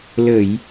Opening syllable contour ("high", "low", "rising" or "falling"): low